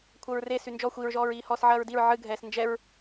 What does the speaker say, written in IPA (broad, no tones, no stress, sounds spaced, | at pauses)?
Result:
kʷʰ ɐ ɹ r e s y n d͡ʒ ɔ xʷ i ɹ ʒ ɔː ɹ iː h ɔː s ʕ ɐː ɹ d i ɹ ʕ ɨ ɡʱ ɛː s n d͡ʒ ɛ ɹ